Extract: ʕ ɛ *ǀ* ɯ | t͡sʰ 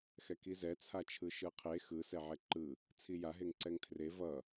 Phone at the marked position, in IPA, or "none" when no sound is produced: ǃ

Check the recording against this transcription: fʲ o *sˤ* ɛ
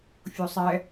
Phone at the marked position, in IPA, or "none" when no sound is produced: sˤ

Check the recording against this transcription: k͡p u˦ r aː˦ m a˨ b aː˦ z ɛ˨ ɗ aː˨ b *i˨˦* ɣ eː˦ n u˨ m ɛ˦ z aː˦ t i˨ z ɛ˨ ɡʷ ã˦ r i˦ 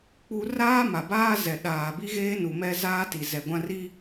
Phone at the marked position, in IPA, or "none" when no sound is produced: i˦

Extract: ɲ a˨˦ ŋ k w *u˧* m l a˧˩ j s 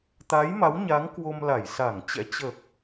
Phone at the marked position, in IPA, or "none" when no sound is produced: o˧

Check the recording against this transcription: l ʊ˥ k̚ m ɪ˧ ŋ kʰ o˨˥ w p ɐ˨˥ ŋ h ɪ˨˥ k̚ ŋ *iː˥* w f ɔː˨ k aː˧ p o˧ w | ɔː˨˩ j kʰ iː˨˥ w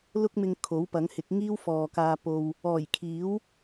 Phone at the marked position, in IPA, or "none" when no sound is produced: iː˥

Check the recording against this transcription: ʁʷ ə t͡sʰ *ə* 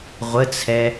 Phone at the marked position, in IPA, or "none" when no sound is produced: ɛ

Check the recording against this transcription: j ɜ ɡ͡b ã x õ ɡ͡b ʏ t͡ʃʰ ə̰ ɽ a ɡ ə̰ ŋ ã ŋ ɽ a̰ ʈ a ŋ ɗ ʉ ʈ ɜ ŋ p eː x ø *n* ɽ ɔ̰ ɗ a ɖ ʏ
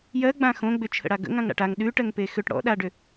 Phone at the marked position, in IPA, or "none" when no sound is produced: ʈ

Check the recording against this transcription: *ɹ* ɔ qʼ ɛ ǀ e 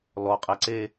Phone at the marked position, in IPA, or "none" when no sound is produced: l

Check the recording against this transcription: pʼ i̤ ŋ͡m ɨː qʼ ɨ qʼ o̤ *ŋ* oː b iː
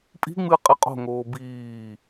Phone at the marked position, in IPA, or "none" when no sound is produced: ŋ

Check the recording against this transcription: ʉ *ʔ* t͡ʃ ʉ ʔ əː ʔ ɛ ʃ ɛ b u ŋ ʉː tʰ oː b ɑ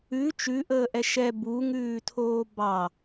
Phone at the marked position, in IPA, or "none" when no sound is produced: none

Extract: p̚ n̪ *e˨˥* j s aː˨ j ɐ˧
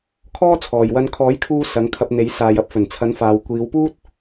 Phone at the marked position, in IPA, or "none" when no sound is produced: e˨˥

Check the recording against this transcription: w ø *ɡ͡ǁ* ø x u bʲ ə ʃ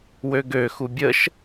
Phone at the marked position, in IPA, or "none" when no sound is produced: ɡ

